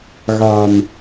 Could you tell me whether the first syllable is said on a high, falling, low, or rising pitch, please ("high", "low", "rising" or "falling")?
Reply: low